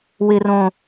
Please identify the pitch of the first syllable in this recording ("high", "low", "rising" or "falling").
high